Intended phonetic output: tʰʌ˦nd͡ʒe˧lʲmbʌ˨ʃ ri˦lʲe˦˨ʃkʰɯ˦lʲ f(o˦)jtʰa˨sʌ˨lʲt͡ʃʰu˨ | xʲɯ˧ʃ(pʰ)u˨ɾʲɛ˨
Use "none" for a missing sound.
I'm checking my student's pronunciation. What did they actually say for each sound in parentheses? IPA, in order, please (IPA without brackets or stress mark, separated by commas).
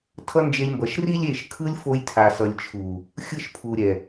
o˧, pʰ